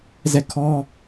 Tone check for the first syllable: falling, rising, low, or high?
falling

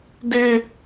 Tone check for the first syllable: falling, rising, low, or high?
high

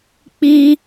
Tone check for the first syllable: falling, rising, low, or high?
high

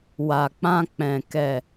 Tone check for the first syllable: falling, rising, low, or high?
low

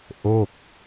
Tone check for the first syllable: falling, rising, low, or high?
falling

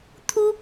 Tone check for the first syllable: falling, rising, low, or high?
high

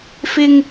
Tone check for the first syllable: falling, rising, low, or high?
high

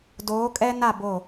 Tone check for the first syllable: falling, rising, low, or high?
rising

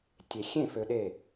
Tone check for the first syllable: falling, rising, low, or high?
low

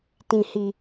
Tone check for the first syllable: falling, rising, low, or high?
low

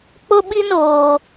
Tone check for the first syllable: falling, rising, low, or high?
high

